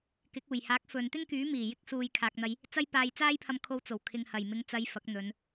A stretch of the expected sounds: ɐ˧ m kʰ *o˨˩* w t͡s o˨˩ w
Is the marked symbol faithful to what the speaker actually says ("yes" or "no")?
no